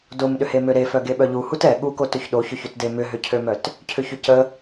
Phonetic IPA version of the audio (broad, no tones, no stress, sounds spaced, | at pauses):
d o m ɗ ʏ h e m ø ɾ e f œ ɡ e ɓ œ ʎ u h u t ɛ ɠ u k o t ʏ ç ɗ o ç œ ç ø t d e m ʏ ɦ ʏ cʰ ø m œ t | cʰ ʏ ç ʏ c ə